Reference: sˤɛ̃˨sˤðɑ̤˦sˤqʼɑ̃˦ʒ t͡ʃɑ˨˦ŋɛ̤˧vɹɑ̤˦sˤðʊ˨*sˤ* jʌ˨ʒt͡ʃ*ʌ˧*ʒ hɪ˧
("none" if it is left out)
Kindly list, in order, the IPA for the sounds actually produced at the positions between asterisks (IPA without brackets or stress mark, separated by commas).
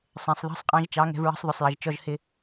sˤ, ɔ˧